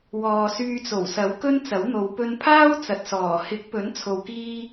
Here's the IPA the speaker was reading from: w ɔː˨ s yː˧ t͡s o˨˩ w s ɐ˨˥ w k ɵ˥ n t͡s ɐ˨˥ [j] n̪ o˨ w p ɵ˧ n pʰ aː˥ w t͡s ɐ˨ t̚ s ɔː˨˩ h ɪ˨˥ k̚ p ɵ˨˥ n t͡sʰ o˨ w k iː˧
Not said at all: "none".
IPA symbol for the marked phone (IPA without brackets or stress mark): w